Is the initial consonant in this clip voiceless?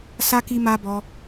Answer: yes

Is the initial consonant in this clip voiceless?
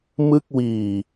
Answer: no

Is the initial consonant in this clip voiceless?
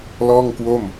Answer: no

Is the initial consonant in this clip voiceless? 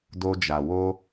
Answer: no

